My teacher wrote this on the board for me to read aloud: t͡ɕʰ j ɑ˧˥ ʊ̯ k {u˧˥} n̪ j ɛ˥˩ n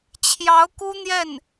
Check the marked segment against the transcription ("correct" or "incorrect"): incorrect